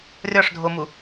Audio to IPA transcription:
rʲ ɒ ʂ dʱ o m u

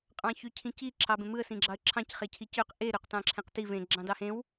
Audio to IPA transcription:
qʼ ɑ̃ ç y cʰ ĩ c i ǁʰ ɑ b ẽ m ɯ ə̯ s ĩ ɡ͡ǁ ɑ ə̯ ǁʰ ɑ̃ c χ e cʰ i c ø q ʔ e ɾ ø q t ɑ̃ ǁʰ ẽ q t i v ẽ ɡ͡ǁ ɑ̃ d ɑ h ẽ w

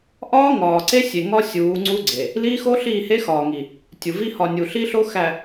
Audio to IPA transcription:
ʔ ɒː˦ ŋ ɒː˨ ǀ e˦ sʲ e˨ ŋ ɒ˦ sʲ uː˨˦ ŋ͡ǀ u˦ ɡ͡ǀ e˨ | l iː˦ x o˦ ɬ iː˦˨ h e˦ x ɒː˨ ŋ i˨ | tʲ u˨ v i˦ h ɒ˨ nʲ u˨ ɬ i˦ ɬ o˦ x æ˨

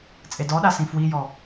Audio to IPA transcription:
t͡sʼ e d ɔ ɗ a s ĩ f w i j ɔ

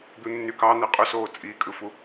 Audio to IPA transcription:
d̪ u nː y k ɑ n̪ e qʼ ø s oː t͡sʼ i kʼ ɯ f u

